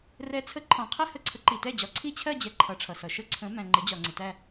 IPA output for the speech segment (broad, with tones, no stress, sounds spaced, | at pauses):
r ɛ˨˥ t͡sʰ ə˨˥ ǃʰ ɔ̃˨ qʰ ɛ˥˧ h ə˥˩ ǀʰ ə˨˥ ǃ i˨ t ɛ˥˩ d͡ʑ ɒ˨˥ ǀʰ i˥˧ t͡ɕʰ ɜ˥˧ d͡ʑ ɛ˨ ǃʰ ʌ˨˥ ʈ͡ʂʰ ʌ˨ s ʌ˨ ʃ ə˥˧ ǀʰ ə̃˨˥ m æ̃˨ ŋ͡ǃ ɪ˨˥ d͡ʑ ɒ˨ ŋ͡ǀ ɪ˨ t æ˥˧